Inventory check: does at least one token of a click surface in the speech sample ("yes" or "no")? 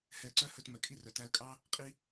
yes